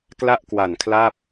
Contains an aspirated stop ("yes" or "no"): yes